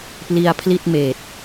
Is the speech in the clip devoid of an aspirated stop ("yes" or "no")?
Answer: no